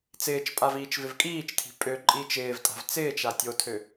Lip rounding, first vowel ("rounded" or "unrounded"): unrounded